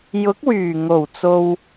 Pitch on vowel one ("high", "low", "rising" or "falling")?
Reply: rising